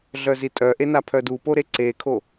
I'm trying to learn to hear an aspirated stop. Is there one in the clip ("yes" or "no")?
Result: yes